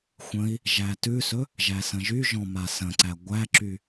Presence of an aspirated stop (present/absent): absent